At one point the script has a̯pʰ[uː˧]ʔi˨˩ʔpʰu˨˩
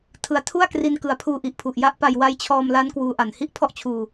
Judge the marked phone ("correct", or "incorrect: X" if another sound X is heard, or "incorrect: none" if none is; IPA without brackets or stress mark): correct